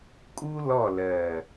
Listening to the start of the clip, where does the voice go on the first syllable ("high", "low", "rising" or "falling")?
high